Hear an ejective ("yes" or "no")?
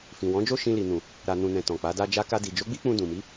no